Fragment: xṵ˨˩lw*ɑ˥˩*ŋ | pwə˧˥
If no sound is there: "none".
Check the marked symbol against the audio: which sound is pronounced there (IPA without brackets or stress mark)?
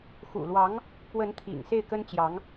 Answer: ɑ˧˥